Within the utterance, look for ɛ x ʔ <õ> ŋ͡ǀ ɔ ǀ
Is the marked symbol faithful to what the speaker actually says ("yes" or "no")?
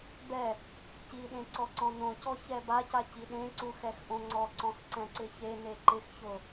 yes